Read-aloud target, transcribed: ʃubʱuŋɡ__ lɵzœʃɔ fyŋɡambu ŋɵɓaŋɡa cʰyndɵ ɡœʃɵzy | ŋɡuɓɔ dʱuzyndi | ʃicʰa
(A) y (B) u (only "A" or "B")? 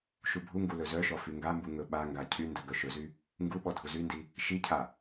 B